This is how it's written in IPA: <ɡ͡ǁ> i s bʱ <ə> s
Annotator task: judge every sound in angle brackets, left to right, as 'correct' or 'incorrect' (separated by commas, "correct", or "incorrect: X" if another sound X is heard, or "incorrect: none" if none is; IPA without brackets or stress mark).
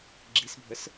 correct, correct